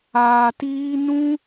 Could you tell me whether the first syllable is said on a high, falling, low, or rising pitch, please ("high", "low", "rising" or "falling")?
low